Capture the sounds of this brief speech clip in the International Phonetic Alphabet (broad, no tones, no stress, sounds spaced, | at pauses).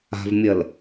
a̤ v mʲ ɜ l